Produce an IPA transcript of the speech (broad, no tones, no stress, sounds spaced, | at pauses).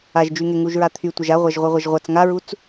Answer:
a ʒ d͡ʒ y ŋ e ŋ u ʒ ɹ a t̪ʰ y tʷ a ʒ a ʁʷ a ʒ ʁʷ e ʁʷ a ʒ ʁʷ a t͡s ŋ a ɹ u t͡s